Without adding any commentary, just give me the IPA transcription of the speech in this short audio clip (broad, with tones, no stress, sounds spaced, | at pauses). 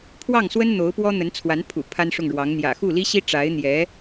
pʰ w ɑ˥˩ ŋ s w ə˥ n n̪ o˧˥ ʊ̯ p w ɔ˥ n̪ ə˧˥ n t͡sʰ w a˧˥ n pʰ ṵ˨˩ pʰ a˥ n ʂ ʊ˥˩ ŋ ɻ w ɑ˧˥ ŋ n̪ j ä̰˨˩ x u˥˩ l i˥ ɕ i˥ ʈ͡ʂ a˧˥ ɪ̯ n̪ j ɛ˧˥